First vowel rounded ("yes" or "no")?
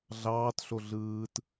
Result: no